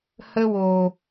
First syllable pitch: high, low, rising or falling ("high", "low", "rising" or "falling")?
high